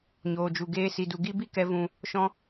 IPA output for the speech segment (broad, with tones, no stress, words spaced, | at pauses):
ɲoː˨d͡ʒu˨ ɡeː˧si˨du˨ ɡi˧bi˧kɛ˨vũ˨ | ʃɔ̃˧